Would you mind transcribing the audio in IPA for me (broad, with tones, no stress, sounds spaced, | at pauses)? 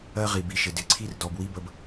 ɜ˦ ʁ i˩ b i˨ ʃ ɪ˩ d ɪ˨ ǀʰ i˥ r d ɔ˨ b w i˦ b ə˨ b